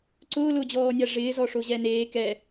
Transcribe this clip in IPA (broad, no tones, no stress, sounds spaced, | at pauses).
ǀ ʊː l ʊː d͡ʑ ɔː nʲ a ʐ ɪː z ɔ ʂ o ʑ ɛ n eː k ɛ